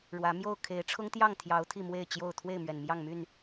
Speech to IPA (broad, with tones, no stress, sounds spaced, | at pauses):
ɻ w ä˨˦ m j o˥˨ ʊ̯ kʰ e˨˦ ɪ̯ ʈ͡ʂʰ ʊ˦ ŋ t̪ j ɑ˥˨ ŋ t̪ʰ j ɑ˨˦ ʊ̯ t̪ʰ i˥˨ m w e˥˨ ɪ̯ t͡ɕ j o˥˨ ʊ̯ t̪ʰ w e˥˨ ɪ̯ m ɥ ɛ˨˩ n m j ɑ˥˨ ŋ m y˥˨ n